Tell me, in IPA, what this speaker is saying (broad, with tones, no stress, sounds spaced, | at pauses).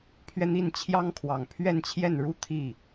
pʰ ɥ ɛ˥˧ n̪ i˥˩ n t͡ɕʰ j ɑ˥ ŋ kʰ w ɑ˨˩ ŋ pʰ ɥ ɛ˥˧ n t͡ɕʰ j ɛ˥˩ n ɻ u˥ t̪ʰ i˥˩